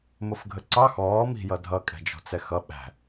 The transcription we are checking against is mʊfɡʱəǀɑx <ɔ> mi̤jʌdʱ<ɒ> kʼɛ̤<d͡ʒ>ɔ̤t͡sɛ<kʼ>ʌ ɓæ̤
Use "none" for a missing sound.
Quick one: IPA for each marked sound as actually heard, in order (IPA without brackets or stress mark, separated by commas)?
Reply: ɔː, ʌ, d͡ʒ, x